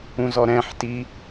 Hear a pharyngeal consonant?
yes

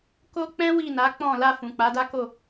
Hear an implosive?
no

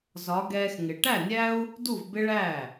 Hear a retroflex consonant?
yes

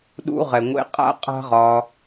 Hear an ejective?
yes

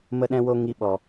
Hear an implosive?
yes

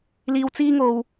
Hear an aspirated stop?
no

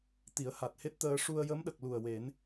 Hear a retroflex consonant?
yes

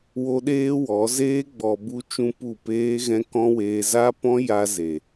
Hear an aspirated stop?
no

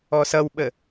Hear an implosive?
yes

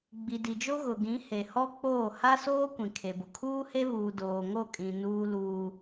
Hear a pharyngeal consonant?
no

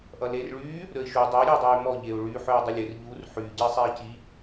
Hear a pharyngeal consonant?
yes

